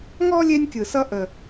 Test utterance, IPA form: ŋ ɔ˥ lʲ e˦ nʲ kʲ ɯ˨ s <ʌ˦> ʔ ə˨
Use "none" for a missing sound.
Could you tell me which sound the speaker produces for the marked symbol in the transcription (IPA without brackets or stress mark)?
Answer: ʌ˦